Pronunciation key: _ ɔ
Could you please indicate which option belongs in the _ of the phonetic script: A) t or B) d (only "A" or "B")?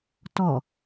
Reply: A